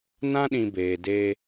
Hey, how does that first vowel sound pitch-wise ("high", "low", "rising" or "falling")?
high